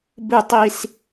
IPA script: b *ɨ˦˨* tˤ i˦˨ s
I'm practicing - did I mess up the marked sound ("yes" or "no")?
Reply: no